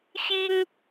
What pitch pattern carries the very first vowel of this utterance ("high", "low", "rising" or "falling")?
high